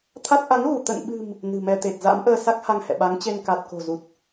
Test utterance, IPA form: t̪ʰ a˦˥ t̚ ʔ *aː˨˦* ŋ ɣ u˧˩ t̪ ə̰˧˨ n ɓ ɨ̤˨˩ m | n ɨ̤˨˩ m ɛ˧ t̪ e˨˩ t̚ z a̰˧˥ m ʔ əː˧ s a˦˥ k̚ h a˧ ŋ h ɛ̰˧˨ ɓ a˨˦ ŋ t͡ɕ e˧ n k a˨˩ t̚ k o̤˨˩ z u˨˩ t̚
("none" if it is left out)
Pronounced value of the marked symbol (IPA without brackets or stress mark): a˨˦